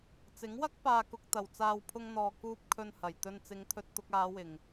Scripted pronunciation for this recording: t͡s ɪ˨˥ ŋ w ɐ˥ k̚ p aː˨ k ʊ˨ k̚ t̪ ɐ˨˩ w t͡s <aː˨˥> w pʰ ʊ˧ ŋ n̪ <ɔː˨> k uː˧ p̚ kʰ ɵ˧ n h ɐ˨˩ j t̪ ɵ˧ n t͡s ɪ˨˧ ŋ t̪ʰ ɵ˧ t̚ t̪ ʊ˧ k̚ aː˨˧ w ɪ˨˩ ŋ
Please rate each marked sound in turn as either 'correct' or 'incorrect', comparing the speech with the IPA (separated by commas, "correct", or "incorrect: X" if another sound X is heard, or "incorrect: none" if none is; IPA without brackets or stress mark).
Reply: incorrect: aː˨, correct